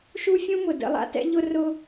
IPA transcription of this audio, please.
ʃ u˥ fʲ ũ˥ m ʊ˩ d ə̰˧ lˠ a̰˥ t ɛ̰˥ ʎ ʊ˥ r ʊ˥

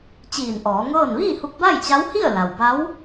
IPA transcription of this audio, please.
t͡ɕ iː˧˩ n ʔ ɔː˩˧ ŋ ɤː˥˨ n ʋ iː˥˨ h u˧ k̚ b a˥˨ j t͡ɕ a˧˥ w h i˥˨ ə̯ l a˩ w b a˧˥ w

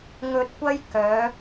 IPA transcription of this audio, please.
ŋ ɵ˧ t̚ kʷ ɐ˥ j k œː˨˥

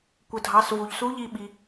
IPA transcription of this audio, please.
kʷ ə˩ dʱ ɑ˩˧ s v u˩ ʎ s u˧˥ ʎ i˧ ɓ i˩

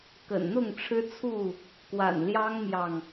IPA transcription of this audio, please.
k ə̰˨˩ n n̪ ʊ˥˨ ŋ ʈ͡ʂʰ ɻ̩˦ t͡sʰ u˥˨ | k w a̰˨˩ n l j ɑ˦ ŋ m j ɑ˨ ŋ

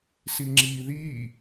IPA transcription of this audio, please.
s i ŋ͡ǁ i ð i

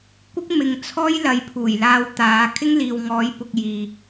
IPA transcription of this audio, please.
kʷ ɪ˥ k̚ m ɪ˨ ŋ t͡sʰ ɔː˥ j l ɐ˨ j pʰ uː˨˩ j l aː˧ w t̪ aː˨˥ kʰ ɪ˥ ŋ l iː˨ w ŋ ɔː˨˥ j p ʊ˧ k̚ j iː˨

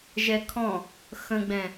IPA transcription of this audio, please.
ʒ ɛ kʰ ɔ̃ | x ə̃ ɡ͡b ɛ̃

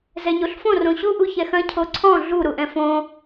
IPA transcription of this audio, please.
z ɛ ɲ o ɬ f õ r õ ɕ u ʔ u ç ɛ x ɐ̃ cʰ o ǀʰ ɔ̃ ɮ u ɾ u ʔ ɛ̃ f õ

